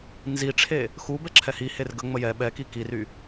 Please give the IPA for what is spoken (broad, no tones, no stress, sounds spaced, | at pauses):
n z i ʈ͡ʂʰ e | x u b ɛ ǁʰ ɛ h i h e r ɡ ə ŋ͡m ə j ɛ ɓ ɛ k i k i r y